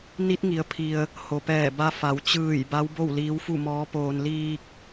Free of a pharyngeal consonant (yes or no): yes